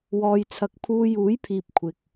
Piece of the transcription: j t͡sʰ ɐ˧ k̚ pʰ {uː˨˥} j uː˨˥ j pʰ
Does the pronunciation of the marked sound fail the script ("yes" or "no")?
yes